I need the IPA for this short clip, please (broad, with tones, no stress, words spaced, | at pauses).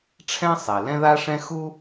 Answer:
ʈ͡ʂʰɛ̃˥sˤe˩ lɛ̃˥ða˥ʂɛ̃˥ xu˥